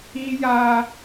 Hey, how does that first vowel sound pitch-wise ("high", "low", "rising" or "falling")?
high